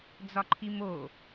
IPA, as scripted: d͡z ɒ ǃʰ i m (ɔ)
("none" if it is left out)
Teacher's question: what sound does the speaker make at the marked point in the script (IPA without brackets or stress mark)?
o